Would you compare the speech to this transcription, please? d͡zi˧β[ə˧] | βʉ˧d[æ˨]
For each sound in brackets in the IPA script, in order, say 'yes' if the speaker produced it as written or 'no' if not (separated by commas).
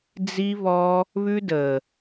no, no